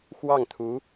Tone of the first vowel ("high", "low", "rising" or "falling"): falling